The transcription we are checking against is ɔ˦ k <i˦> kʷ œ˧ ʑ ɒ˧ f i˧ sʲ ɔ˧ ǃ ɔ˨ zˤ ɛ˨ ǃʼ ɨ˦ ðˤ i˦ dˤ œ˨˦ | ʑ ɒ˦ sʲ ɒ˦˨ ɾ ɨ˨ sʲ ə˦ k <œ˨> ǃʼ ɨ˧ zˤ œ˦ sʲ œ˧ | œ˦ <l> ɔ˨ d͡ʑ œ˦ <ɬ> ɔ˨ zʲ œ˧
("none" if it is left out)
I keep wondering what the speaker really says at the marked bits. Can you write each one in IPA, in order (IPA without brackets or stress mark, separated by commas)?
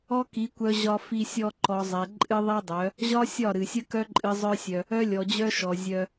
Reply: i˨˦, œ˦, lʲ, ʃ